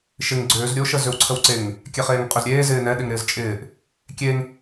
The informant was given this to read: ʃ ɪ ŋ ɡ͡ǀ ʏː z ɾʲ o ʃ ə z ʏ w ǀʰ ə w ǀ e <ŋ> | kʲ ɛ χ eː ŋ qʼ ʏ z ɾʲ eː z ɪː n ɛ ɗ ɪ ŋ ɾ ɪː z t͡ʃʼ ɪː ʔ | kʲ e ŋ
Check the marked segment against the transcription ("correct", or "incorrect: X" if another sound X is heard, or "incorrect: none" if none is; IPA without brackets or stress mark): correct